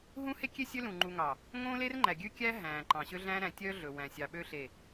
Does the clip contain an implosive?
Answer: yes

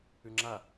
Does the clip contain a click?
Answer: yes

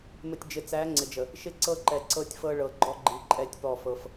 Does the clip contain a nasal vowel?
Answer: no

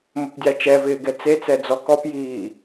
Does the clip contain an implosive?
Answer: no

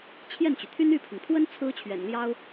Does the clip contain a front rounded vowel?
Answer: yes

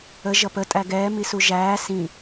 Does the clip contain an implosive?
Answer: no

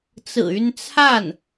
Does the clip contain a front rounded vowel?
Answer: yes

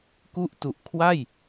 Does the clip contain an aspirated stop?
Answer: yes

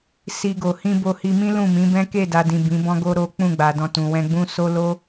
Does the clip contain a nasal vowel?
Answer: yes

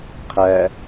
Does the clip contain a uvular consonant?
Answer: yes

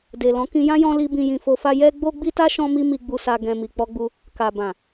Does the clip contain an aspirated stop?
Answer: no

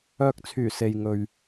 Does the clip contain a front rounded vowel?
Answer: yes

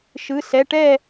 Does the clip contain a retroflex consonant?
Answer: yes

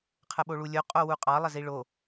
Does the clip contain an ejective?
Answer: yes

